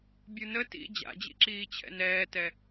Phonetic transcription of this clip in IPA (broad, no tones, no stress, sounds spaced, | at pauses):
bʲ u n ə t ḭ d͡ʑ a̰ d͡ʑ ḭ ǁ iː t͡ɕʰ ɛ̰ n ɛː t ɛ